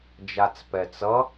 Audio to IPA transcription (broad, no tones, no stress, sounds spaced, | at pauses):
d͡ʒ a t͡s p ɛ t͡s ʌ